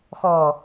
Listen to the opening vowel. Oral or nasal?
oral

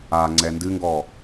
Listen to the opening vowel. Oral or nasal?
oral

